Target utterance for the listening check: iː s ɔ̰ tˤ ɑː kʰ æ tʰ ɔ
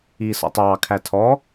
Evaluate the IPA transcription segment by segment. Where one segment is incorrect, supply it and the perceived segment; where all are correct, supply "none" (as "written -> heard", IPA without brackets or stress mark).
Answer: none